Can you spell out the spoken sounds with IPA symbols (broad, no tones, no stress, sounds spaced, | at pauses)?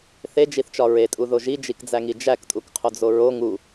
θ e d͡ʒ i θ t͡ʃ ɒ ɹ e tʼ u ð o ʒ i d͡ʒ i k d͡z æ ŋ i d͡ʒ æ k tʼ u k qʰ o d͡z o ɹ o ŋ u